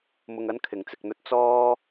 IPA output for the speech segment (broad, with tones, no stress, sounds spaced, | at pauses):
m ʊ˧ ŋ ɐ˥ n kʰ ɪ˨ ŋ t͡s ɪ˧ k̚ n̪ ɵ˥ t̚ t͡s ɔː˥